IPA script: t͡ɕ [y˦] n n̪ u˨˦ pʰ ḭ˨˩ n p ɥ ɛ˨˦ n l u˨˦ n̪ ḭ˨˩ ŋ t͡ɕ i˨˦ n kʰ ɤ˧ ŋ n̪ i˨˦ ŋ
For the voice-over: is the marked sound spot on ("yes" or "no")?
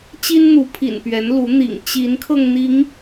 no